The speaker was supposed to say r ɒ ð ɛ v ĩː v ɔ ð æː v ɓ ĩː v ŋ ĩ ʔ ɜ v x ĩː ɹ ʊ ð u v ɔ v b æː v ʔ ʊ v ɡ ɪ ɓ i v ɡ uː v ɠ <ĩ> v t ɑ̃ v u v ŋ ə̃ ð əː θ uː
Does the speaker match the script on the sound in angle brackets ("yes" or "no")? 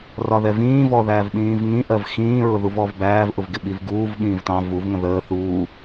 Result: no